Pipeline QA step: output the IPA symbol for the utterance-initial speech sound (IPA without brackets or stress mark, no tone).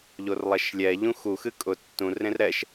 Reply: ʎ